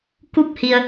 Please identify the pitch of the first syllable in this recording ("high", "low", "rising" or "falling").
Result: falling